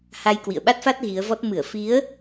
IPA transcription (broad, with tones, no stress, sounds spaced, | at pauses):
h a˧ j k w ḭ˧˨ ə̯ ɓ a˦˥ t̚ f a˦˥ t̚ ɣ i˨˦ ə̯ v ɔ˦˥ t̚ m ɨ˧˩ ə̯ f i˨˦ ə̯